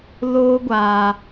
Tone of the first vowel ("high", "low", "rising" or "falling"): high